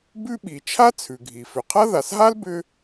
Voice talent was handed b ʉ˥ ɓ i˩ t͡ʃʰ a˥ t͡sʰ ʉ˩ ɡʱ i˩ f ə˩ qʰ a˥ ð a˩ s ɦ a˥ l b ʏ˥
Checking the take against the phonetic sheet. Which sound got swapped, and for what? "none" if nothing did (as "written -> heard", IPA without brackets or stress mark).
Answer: ə˩ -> ʏ˩